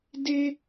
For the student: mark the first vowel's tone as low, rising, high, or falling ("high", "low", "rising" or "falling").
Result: high